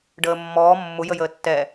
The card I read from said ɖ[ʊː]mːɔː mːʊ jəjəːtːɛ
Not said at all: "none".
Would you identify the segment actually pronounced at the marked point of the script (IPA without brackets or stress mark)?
əː